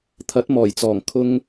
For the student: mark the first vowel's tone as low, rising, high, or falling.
rising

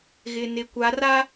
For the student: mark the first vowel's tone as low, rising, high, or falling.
low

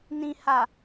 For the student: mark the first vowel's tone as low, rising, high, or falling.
low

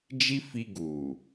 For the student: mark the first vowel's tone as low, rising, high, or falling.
high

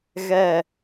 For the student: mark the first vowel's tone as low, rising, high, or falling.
falling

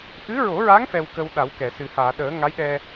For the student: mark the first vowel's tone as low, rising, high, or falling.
rising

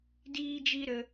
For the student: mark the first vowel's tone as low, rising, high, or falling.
high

